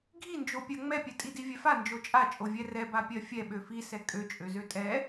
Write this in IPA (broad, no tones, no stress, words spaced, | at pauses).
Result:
ɡʱind͡ʒopʲɜ ŋ͡mɛpʲɛ tʼidivʲɛfa nd͡ʒot͡ʃʼat͡ʃʼo vʲɛrɛ bapʲɜfʲɛ ɓøfisɛ kʼøt͡ʃʼøzø tʼɛ